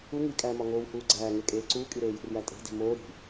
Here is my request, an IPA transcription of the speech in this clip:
u ŋ i kʼ æː m ɒ ŋ oː w h uː ɡ͡ǀ æː ŋ e kʼ eː ǀ uː kʼ i ɾ eː j ṳ r j æ tʼ e̤ d i̤ m oː ɾ i̤

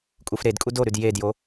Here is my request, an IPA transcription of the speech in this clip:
kʼ u f ɾ e d kʼ u d o ɾ ʉ d j e d j o

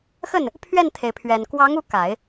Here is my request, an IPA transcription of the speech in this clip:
x ə˥˩ n | pʰ ɥ ɛ˥˩ n t̪ʰ e˩ ɪ̯ pʰ ɥ ɛ˨˩ n k w ɑ˧˥ ŋ u˧˥ k a˨˩˦ ɪ̯

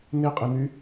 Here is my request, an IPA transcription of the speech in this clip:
n e qʼ e n y

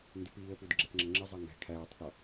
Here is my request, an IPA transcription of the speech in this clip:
n d ɪ p iː ə̯ p u d ɡ͡ǁ ɛ θ ŋ͡ǁ ʌ ŋ͡ǁ ɪ zˤ ɛ ŋ ɡ æ̤ kʰ æː tˤ θ ɔ

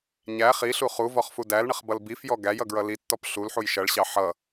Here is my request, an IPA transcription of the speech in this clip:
ɲ æ χ i ɬ u χ u v ɔ χ f u d æ l ɳ ə χ b ʌ l b i f j ɔ ɡ æ j ʌ ɡ ɹ ʌ l i tː ɔ p ɬ u l ħ u j ʃ ʌ ɭ ɕ ɑ ħ ʌ

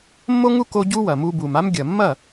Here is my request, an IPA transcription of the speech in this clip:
mː o˦ ŋ u˦ k o˦ ɟ u˦ w ɐ˨ m u˧ b u˨ m a˦ m ɡʲ ɐ˨ mː ɐ˦˨

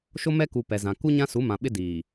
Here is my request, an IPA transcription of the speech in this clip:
ʃ o˦ m ɛ˦ k u˨ p ɛ˨ z ã˨ k u˦ ɲ ã˦ s u˨˦ m ã˨ ɓ ɪ˦ d iː˨

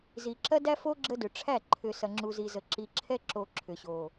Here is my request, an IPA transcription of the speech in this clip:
z i˨ ǁ ɐ˦ d æ˦ f o˦ ɡ͡ǁ ə˦ d ʏ˨ ʈ͡ʂʰ æ˦˨ ǃʰ ʏ˨ s ɐ˨ ŋ͡ǁ u˨ z i˨ z ə˨ ǁ i˨ ǁʰ ɛ˦ ǁ o˨ ǁʰ ʏ˨ ɕ o˨

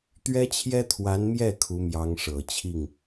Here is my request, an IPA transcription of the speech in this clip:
t̪ ɥ ɛ˥ t͡ɕʰ j ɛ˥ t̪ʰ w a˧˥ n m j ɛ˥˩ kʰ u˧˥ m j ɑ˧˥ ŋ ʂ ɤ˨˩ t͡ɕʰ i˥˩ ŋ

